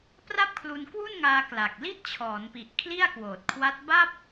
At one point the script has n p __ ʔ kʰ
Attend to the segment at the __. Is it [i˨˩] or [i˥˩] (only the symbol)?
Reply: i˨˩